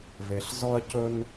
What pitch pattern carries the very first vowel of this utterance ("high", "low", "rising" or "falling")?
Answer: low